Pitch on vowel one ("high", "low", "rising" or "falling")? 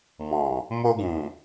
low